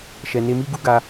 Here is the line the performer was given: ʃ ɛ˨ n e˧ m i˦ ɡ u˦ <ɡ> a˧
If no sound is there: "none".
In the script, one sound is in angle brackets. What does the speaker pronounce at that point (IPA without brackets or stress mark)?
ɡ